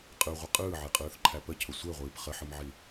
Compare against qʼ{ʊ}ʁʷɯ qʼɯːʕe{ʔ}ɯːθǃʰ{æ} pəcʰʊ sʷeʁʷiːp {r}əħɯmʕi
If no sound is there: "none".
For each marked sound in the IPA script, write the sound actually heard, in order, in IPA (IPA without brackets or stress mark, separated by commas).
ɯ, qʼ, æ, χ